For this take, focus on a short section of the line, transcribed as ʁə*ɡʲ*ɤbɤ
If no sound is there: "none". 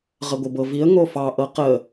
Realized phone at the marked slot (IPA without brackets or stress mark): ɡʷ